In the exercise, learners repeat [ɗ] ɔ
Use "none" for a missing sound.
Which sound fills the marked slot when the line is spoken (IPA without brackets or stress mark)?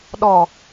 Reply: ɗ